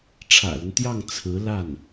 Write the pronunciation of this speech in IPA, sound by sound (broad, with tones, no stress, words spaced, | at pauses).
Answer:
ʈ͡ʂʰä̰˨˩lə˦nt̪jɑ˥˩ŋ t͡sʰɹ̩˧˥ la˥˩n